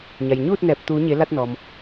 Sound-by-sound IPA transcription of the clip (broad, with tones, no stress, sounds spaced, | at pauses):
ɲ a˩ j ɲ uː˥˨ t̚ n ɛː˧˩ p̚ t̪ uː˩˧ ɲ e˩˧ l a˧ t̚ n ɔː˩ m